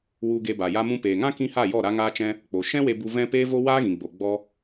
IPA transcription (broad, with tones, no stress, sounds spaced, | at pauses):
w u˧ ɡ e˧ b a˨ j a˧ m ũ˧ p eː˨ ŋ ã˦ k ĩ˦ h a˦˨ j ɔ˦˨ ɾ a˦ ŋ aː˦ t͡ʃ ɛ̃˦ | k͡p o˨ ʃ ɛ̃˦ w e˧ b u˧ v ɛ̃˦ p eː˦ v o˦ w aː˦ ɣ ĩ˨ ɡ͡b o˨ ɡ͡b ɔ˧